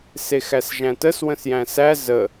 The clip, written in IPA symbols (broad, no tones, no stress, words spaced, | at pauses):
sexæsʒæ̃təs wə̃sjæ̃sæ zə